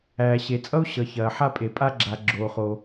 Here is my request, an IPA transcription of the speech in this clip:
æː˩ ɕ e˩ t͡sʼ ʌ˥ u̯ ɕ ʌ˩ ç ɐː˩ ħ a˥ pʼ e˩ pʼ a˥ ɡ͡ǁ a˩ ɡ͡ǁ oː˩ χ o˩

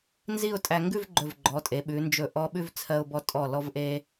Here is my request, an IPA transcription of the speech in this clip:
n z i˥˧ ʊ̯ tʼ æ˧ ŋ ɡ ʉ˥˧ v ɡ͡ǃ ɵ˧˩ v ɡ͡ǃ ɔ˩˧ tʼ e˩˧ ɓ ʉ˩˧ n d͡ʒ ɵ˧˩ ʔ ɔ˧ ɓ ʉ˥˧ v t͡sʰ ɜ˧ ʊ̯ b ɔ˧ tʼ ɔ˧˩ l ɔ˧ v ʔ e˧

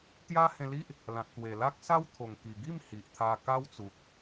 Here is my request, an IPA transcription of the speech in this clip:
t̪ j a˦ h ẽ˧ l i˦ ʔ | l ã˨ t̚ t̪ w e˨˩ l a˦ k̚ s a˦ w t̪ʰ o˨˩ ŋ k i˨˩ ɡ i˥˧ m h i˨ ʔ t̪ʰ a˧ k a˦ w t͡s u˨ k̚

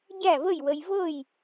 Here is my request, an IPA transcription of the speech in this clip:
ɟ æ˥˨ v ə˥˨ j w ə˧ j v ɤ˥˨ j

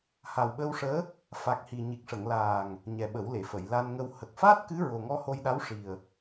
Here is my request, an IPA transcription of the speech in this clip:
h a˨˩ w ɓ əː˧ w ʂ əː˧˥ | f a˨˩ k̚ h i˨˩ ɲ i˨˩ k̚ ʂ ə˨˩˨ ŋ l aː˨˩ ŋ | ɲ ɛ˨˩ ɓ ə˨˩˦ w l e˨˩˨ f ə˨˩˨ j l a˧ n ŋ ə˧ w h ə˨˩ k̚ f aː˦˥ t̚ k ɨ˧˥ ɹ o˨˩ ŋ ɔ˧ h o˧ j ɗ a˧˥ w ʂ i˨˩ ə̯

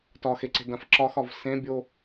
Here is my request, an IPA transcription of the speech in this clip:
t ɒ x e ǀ e̤ d ã f ǁ ɒ x ɒ v s ẽ bʲ o

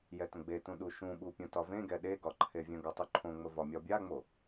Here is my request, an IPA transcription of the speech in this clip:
j ɛ t ə̃ ɡ͡b e t ũ ɗ u ʃ ũ ɓ u pʲ ũ t ɒ v ẽ ɡ ɛ ɗ e ɡ ɒ ǃʰ e vʲ ə̃ ɡ ɒ tˤ u ǃʰ õ ŋ͡m ə v ɒ mʲ ɒ bʲ a ŋ͡m o

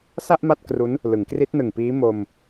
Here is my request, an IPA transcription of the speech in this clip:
s a˥˩ ʔ m a˥˩ t̚ k r u˦˥ n | l ɯ˩˦ ŋ k r i˦˥ t̚ n ɯ˨˩ ŋ p iː˦˥ m o˧ m

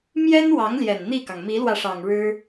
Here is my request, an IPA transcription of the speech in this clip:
m j ɛ˥ n w ɑ˧˥ ŋ l j ɛ˨˩ n n̪ i˥˩ k ɑ˩ ŋ m i˧˥ l w ä˧ ʂ ɑ˨˩ ŋ ɻ ɻ̩˥

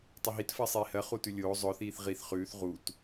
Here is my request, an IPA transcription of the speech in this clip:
tˤ ʊ ɦ i t f ɜ sˤ iː h ɜ χ u t ʉ lʲ oː zˤ ʊ θ iː θ ʁ i θ χ ʉː θ ʁ u t

